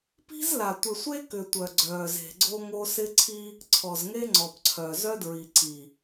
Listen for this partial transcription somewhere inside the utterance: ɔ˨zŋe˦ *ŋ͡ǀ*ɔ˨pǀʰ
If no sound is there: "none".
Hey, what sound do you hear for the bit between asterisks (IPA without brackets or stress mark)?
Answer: ŋ͡ǀ